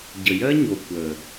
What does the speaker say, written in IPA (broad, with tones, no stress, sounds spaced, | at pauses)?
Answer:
ɟ ə˨ j ɜ˦ ɲ o˨ kʷ əː˨